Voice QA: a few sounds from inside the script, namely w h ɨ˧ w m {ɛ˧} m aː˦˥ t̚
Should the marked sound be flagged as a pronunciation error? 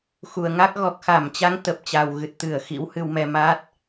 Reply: no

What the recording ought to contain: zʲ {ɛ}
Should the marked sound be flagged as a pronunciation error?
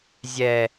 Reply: no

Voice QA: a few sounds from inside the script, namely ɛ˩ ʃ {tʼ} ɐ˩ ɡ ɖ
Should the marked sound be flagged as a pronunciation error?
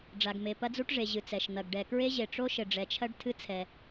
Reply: yes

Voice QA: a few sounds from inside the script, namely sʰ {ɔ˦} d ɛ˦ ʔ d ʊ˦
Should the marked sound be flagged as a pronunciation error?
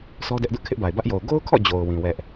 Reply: no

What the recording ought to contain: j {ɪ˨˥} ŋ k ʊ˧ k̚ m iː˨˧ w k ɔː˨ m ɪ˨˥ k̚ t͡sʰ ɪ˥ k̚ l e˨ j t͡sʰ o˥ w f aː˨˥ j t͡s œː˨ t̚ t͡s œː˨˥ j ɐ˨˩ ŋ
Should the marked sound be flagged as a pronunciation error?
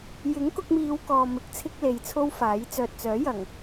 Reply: no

